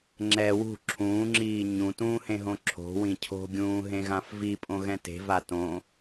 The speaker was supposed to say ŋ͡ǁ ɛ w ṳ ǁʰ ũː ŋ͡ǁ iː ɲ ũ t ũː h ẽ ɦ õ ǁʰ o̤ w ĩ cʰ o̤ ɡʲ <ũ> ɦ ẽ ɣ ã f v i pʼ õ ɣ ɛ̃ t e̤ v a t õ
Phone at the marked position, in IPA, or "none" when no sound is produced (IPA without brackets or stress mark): ũː